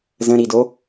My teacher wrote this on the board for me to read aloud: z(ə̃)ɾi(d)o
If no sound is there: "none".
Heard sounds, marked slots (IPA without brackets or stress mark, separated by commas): ə̃, d